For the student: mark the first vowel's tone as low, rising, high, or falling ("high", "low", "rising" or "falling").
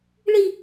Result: falling